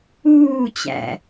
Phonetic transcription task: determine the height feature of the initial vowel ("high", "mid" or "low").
high